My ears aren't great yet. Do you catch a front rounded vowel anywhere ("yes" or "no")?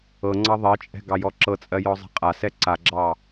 no